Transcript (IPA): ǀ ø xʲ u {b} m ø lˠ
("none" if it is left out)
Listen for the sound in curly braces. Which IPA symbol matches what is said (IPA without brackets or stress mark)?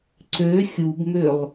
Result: b